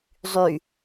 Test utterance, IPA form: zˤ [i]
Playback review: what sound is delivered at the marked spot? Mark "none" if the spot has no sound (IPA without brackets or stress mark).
y